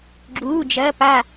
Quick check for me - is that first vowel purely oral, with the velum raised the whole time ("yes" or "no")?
yes